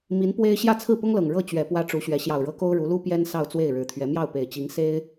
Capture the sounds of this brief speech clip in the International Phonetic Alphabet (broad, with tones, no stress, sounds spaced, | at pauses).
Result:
m i˧˥ n p w e˥ ɪ̯ ɕ j ä˥˧ t͡sʰ ɹ̩˥˩ p ʊ˥ ŋ l ɤ˨˩ ŋ ɻ ɤ˥˩ t͡ɕ ɥ ɛ˨˩ p w ä˧˥ ʈ͡ʂ u˧˥ ɕ ɥ ɛ˧˥ ɕ j ɑ˨˩ ʊ̯ ɻ ɤ˧˥ k o˥ ʊ̯ ɻ u˧˥ l u˥ p j ɛ˥ n s ɑ˥˧ ʊ̯ t͡s w e˥˩ ɪ̯ ɻ ɻ̩˧˥ t̪ʰ ɥ ɛ˧˥ m j ɑ˥˩ ʊ̯ p e˨˩ ɪ̯ t͡ɕ i˧˥ ŋ s e˥ ɪ̯